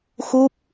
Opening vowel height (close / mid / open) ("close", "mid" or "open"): close